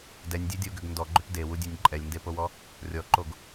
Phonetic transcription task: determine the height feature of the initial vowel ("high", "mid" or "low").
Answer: mid